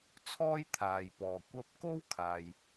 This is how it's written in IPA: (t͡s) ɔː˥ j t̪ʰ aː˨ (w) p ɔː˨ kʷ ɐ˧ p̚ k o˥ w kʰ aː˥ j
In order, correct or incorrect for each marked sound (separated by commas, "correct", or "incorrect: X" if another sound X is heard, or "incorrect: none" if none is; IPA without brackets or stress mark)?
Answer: incorrect: t͡sʰ, incorrect: j